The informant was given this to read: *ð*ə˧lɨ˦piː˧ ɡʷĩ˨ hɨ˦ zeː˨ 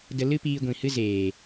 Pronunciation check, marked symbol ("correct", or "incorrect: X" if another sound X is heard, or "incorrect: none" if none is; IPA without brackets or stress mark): incorrect: d